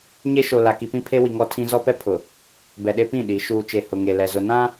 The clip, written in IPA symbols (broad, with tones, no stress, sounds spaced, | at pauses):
ɲ e˦ ʃ o˨ l a˨ k i˨ p ĩ˦ pʰ e˦ w i˨ ŋ ɔ˦ tʰ ĩ˦ z ɔ˦ p ɛ˦ pʰ ʊ˨ | b ɛ˨ ɗ e˦ p ĩ˦˨ ɗ i˨˦ ʃ uː˨ t͡ʃ e˨ h ʊ˨ ŋ e˨ l ɛ˨ z ʊ˨ n ã˦